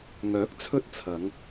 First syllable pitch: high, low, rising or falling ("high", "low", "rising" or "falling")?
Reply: rising